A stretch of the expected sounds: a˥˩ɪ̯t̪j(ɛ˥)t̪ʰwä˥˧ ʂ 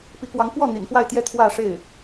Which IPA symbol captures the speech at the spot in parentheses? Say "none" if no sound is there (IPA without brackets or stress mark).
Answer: ɛ˥